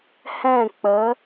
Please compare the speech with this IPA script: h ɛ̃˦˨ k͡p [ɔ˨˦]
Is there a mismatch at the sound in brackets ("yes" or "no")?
yes